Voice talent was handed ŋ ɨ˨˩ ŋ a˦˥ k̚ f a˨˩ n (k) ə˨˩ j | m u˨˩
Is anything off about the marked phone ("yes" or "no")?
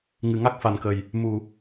no